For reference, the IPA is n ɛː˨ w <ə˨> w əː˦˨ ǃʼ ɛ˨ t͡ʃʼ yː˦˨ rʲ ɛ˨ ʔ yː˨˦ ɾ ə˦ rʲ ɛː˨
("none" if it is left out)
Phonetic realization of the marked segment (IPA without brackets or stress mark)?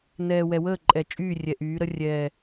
ɛ˨